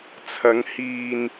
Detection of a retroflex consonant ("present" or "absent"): absent